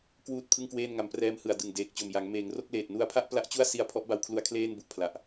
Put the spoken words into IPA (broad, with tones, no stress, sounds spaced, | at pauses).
k w uː˥˩ t̚ pʰ ɯ˥˩ ŋ k w eː˥˩ n ŋ a˧ m p r ɛː˧ m h ɯ˨˩ a̯ d ɯ˨˩ ŋ d eː˨˩ k̚ t͡ɕ o˨˩ m j a˩˦ ŋ m eː˩˦ ŋ r o˥˩ k̚ l eː˨˩ t̚ n u˧ a̯ pʰ a˥˩ ʔ p l a˥˩ ʔ t͡ɕ u˥˩ a̯ s i˧ a̯ pʰ ɔ˦˥ ʔ b a˧ w kʰ l u˧ a̯ kʰ l eː˥˩ n b u˨˩ ʔ pʰ l a˨˩ ʔ